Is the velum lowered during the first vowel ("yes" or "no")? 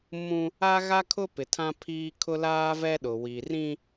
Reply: yes